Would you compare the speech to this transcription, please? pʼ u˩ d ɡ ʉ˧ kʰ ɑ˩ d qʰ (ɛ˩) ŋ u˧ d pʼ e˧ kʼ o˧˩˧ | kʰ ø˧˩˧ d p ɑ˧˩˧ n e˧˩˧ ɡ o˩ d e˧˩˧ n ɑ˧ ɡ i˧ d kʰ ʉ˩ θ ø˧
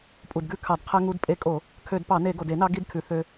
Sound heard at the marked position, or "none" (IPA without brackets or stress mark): ɛ˧